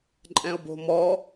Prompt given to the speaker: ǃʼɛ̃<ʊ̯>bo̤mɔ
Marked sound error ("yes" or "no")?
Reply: no